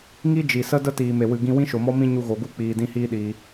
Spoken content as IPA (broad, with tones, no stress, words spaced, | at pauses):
ŋi˦d͡ʒi˨sə˦ də˦tiː˨me˨wɨ˨ ɡĩ˧wĩ˦ʃo˨mɔ˦ mĩ˦ ɲu˧ɣo˨ɡu˦ k͡piː˨dĩ˧hiː˦ ɗiː˧